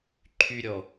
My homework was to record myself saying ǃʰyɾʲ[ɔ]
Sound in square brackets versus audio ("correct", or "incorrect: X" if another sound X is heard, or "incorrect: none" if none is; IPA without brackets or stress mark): correct